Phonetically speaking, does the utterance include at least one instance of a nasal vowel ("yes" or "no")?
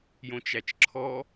yes